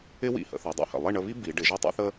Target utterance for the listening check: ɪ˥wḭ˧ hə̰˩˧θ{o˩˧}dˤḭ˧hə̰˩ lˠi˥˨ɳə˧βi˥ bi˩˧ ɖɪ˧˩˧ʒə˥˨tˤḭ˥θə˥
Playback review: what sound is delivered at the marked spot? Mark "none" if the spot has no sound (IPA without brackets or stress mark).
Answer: o˩˧